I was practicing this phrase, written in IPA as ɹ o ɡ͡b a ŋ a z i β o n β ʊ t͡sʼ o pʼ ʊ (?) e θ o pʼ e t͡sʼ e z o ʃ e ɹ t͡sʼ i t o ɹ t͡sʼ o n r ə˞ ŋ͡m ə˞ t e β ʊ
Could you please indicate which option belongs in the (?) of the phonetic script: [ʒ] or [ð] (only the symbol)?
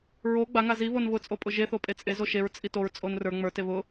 ʒ